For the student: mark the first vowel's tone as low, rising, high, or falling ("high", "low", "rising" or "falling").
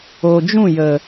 low